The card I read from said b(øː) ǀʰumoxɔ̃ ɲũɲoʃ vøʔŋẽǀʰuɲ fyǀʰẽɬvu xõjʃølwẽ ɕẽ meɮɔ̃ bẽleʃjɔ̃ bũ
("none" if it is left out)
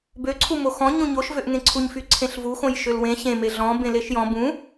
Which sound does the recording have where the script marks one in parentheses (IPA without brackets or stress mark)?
ø